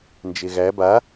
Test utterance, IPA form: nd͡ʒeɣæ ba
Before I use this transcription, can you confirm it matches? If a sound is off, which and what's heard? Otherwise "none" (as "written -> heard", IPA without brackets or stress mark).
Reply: none